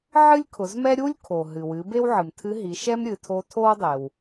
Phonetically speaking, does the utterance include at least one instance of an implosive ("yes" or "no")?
no